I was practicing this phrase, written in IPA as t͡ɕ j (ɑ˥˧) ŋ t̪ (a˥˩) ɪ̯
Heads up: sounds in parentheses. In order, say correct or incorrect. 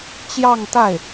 correct, correct

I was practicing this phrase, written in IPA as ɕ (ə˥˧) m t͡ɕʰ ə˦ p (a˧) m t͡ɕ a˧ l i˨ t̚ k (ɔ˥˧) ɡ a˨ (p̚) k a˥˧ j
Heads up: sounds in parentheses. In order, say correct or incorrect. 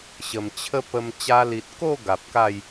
incorrect: ə˨˩, incorrect: ə˧, incorrect: o˥˧, correct

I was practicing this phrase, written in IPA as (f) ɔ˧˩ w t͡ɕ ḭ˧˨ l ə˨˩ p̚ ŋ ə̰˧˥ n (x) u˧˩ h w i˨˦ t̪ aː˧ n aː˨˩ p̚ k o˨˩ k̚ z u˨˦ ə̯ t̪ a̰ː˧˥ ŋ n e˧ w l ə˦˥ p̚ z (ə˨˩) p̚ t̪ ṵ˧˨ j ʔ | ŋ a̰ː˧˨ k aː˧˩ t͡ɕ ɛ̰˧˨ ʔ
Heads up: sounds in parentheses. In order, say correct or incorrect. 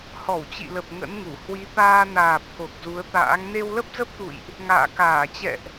incorrect: h, incorrect: ŋ, incorrect: ə˦˥

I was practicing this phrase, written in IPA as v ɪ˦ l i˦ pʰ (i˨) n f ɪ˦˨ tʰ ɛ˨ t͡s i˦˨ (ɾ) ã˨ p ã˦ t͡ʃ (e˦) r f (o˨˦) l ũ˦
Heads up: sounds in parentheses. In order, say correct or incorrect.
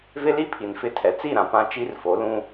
correct, correct, incorrect: i˦, correct

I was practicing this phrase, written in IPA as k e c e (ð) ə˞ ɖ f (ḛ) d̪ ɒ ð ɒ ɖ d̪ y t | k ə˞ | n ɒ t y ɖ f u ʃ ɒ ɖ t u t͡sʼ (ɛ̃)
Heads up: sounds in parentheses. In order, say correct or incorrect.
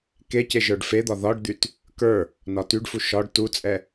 incorrect: ʒ, incorrect: e, incorrect: ɛ

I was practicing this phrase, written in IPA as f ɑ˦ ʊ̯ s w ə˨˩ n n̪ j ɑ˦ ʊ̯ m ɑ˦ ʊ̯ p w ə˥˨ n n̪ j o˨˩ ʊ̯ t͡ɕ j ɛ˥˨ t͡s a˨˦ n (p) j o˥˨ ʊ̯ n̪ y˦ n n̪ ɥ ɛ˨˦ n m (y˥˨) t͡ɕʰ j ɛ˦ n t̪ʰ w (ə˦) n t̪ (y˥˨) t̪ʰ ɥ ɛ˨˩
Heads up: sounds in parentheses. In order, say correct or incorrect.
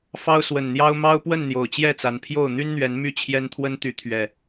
incorrect: pʰ, correct, correct, incorrect: y˨˦

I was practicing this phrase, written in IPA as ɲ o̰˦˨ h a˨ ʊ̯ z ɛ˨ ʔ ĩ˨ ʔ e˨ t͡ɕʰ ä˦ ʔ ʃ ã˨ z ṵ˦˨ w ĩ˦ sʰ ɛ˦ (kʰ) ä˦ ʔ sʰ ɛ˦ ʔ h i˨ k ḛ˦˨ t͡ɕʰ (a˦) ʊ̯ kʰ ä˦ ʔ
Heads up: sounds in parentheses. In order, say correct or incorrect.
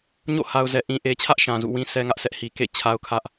incorrect: ŋ, correct

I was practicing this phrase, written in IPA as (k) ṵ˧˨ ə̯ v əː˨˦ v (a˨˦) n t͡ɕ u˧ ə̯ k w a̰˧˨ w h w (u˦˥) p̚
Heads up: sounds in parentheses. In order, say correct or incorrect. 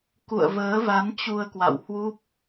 correct, correct, correct

